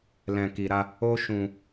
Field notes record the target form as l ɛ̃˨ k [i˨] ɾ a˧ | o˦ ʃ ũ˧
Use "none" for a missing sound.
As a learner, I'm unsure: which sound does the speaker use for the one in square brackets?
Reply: i˨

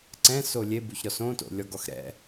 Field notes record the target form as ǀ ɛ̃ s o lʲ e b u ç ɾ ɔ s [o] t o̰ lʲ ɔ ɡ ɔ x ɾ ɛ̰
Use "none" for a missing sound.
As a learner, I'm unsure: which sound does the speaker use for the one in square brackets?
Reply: õ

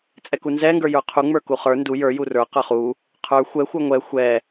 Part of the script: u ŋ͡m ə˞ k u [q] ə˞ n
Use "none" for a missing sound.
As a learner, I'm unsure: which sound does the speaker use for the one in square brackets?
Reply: χ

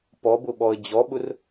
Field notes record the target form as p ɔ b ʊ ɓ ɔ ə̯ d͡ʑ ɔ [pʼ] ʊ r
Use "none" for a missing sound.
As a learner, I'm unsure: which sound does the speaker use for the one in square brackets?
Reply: ɓ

